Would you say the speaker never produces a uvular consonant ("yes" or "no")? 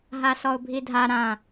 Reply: yes